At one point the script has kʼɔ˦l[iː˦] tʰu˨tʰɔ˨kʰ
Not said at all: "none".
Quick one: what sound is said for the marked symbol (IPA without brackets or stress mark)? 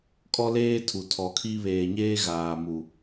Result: eː˦